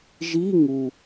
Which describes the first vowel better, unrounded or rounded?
unrounded